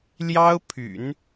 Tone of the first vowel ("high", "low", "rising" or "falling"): high